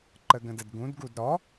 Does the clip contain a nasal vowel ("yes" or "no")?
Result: yes